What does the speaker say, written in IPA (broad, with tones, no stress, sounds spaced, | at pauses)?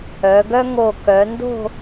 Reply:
œ˩˧ ɡ œ˥ ŋ o˧˩ k œ˩˧ n d o̤˥˧